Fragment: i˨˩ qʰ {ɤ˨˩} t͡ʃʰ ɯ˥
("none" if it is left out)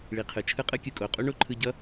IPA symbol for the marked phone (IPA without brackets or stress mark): ɯ˨˩